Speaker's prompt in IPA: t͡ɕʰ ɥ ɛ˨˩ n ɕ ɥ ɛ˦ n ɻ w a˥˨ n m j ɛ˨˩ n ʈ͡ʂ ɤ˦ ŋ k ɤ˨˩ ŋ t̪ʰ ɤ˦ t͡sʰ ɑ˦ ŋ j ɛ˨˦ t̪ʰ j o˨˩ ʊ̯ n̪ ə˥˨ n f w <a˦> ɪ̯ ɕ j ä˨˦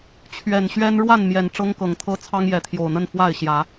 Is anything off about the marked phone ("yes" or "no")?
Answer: yes